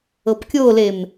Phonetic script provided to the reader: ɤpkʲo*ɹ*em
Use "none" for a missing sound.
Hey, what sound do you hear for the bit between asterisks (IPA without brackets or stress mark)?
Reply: l